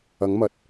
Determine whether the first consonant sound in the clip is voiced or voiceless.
voiced